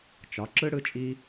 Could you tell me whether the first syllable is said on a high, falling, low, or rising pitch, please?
rising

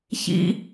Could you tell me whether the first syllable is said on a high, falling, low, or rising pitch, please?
high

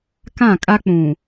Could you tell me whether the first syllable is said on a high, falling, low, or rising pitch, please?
falling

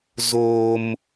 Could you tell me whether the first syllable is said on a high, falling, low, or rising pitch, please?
high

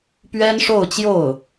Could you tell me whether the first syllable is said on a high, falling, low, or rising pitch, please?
high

